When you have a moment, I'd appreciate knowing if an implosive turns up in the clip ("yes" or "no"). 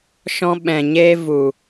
yes